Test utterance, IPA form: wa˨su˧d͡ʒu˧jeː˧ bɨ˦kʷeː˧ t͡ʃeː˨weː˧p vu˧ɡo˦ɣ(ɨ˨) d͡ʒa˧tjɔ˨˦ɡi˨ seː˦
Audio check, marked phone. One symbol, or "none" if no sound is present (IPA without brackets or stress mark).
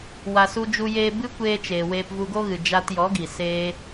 ɨ˨